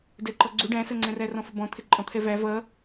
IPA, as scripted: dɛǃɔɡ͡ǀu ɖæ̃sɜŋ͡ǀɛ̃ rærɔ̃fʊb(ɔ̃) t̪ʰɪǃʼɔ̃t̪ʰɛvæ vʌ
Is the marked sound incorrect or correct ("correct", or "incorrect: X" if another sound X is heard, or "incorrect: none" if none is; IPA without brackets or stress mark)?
correct